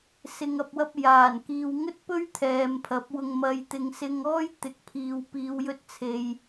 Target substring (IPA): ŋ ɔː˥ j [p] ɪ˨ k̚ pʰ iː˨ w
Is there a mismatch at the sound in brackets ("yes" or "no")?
yes